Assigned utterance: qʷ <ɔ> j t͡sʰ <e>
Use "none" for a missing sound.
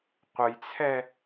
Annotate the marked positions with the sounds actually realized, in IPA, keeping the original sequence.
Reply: ə, ɛ

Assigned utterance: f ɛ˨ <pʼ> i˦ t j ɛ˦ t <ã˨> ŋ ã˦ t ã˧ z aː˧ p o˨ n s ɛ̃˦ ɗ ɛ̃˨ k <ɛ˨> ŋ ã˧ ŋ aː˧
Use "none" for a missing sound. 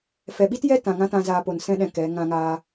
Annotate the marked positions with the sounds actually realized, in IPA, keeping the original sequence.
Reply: ɓ, ã˨, ɛ˨˦

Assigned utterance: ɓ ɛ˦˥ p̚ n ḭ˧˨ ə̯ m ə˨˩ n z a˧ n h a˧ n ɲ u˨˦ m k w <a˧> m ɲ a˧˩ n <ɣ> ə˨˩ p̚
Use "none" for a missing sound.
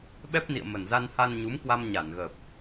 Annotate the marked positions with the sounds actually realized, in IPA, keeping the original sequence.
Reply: a˧, ɣ

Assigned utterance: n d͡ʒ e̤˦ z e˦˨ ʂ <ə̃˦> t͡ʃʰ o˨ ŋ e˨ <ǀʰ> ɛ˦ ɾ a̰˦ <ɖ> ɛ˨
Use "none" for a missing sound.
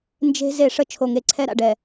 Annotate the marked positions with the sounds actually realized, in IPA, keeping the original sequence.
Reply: ə˦, ǀʰ, ɖ

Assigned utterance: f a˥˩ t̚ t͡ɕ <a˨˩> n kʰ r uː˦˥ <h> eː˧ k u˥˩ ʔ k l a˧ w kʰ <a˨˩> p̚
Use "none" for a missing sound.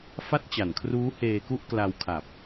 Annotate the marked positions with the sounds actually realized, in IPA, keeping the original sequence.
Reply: a˨˩, h, a˨˩

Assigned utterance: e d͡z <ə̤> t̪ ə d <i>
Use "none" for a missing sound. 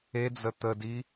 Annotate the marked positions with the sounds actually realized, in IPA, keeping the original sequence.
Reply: ə, i

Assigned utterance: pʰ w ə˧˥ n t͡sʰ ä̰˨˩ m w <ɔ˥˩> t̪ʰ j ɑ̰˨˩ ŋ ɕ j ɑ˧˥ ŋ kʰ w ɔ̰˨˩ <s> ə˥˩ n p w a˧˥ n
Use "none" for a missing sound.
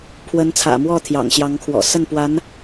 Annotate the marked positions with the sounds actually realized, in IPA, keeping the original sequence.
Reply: ɔ˥˩, s

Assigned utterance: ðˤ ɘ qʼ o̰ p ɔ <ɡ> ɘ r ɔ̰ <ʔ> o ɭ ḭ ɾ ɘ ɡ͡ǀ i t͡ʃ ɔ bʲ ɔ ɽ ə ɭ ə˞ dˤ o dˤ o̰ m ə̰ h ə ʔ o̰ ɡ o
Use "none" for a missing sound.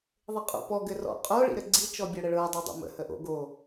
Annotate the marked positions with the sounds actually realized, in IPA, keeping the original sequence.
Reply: ɡ, qʼ

